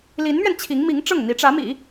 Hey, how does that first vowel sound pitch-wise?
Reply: rising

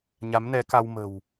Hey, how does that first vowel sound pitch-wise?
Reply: rising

